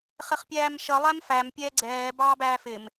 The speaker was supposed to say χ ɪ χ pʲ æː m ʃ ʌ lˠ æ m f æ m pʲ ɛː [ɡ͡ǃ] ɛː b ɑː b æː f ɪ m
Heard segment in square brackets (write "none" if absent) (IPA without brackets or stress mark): ɡ͡ǀ